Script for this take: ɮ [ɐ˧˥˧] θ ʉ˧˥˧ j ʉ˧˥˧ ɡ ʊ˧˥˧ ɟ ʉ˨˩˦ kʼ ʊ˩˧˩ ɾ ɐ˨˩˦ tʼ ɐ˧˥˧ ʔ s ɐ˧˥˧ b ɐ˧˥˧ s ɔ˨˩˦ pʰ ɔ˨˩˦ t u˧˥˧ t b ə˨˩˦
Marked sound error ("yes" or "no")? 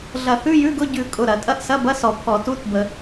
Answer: yes